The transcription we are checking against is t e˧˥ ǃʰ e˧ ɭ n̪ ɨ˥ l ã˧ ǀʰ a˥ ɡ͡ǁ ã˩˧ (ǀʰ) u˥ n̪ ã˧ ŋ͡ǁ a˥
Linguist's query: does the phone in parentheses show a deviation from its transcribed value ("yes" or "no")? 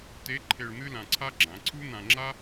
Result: no